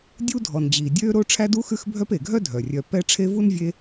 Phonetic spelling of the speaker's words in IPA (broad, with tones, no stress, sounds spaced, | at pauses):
dʲ u˦ dʱ ɔ˩ n d͡ʑ iː˩ dʲ øː˦ ɾ o˦ ʈ͡ʂʰ æ˦ d u˦ x ʉ˦ x bʱ œ˦ p e˩ ɡʱ œ˥ dʱ œ˩ rʲ œ˨ p ɛ˦ ʈ͡ʂʰ e˦ v u˥ n vʲ e˦